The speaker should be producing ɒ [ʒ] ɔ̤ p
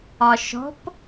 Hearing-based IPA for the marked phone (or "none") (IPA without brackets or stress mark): ʃ